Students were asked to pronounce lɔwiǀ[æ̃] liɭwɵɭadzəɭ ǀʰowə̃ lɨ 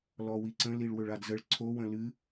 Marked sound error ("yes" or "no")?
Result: yes